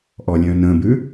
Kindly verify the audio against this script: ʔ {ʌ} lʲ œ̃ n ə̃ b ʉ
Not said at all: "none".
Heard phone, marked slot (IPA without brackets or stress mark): ɔ